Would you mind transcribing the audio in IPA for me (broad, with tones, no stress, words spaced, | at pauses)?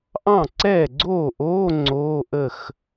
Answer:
ʔɑ̃˥˩ ǀɛː˥˩ɡ͡ǀoː˥˩ʔoː˧˥˧ ŋ͡ǀoː˧˥˧ʔə˥˩x